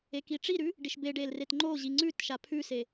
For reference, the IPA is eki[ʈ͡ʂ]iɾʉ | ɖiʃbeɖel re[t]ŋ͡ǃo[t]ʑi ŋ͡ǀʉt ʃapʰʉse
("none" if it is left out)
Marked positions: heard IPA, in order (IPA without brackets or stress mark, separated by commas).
ʈ͡ʂ, t, none